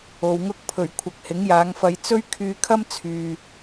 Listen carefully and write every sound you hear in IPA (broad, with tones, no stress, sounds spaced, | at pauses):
o˨ w ŋ ʊ˥ k̚ pʰ ɵ˨˩ ɥ kʷʰ ɐ˨˥ k̚ h ɪ˨˥ ŋ j aː˨˧ ŋ f ɐ˧ j t͡s ɵ˥ ɥ kʰ yː˧ kʰ ɐ˥ m t͡sʰ yː˨